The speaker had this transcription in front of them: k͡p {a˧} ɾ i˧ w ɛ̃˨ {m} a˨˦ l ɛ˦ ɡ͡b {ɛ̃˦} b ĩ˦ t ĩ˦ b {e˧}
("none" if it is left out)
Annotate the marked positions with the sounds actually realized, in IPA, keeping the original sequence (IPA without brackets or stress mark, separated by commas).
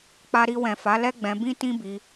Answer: a˧, f, ɛ̃˧, i˧